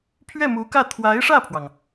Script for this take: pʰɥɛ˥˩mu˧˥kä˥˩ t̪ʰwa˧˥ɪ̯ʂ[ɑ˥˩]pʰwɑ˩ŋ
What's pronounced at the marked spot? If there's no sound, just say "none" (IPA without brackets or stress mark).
ä˥˩